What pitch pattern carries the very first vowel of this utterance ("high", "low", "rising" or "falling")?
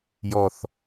low